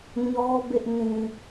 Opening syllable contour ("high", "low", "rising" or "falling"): high